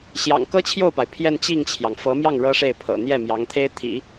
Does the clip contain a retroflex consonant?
yes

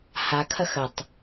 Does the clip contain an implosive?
no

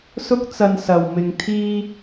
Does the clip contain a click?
no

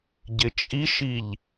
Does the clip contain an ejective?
yes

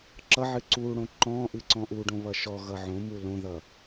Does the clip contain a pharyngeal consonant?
yes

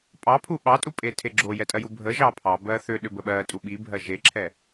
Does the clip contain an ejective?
yes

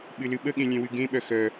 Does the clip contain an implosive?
yes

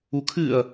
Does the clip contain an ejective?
no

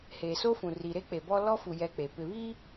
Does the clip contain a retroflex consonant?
no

